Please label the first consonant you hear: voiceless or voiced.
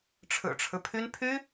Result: voiceless